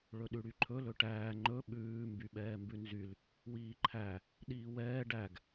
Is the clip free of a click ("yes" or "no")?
no